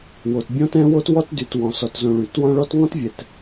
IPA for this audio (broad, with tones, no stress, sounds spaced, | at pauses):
w o˨ t bʲ ɔ̃˥ t ɛ̃˥ w o˥ t w ɔ˥ t d y˨ t w ɔ̃˩ s ɔ˨ t z õ˨ ɭ y˩ t w ɔ̃˦ ɭ ɔ˦ t ŋ ɔ̃˥ t vʲ ɛ˩ t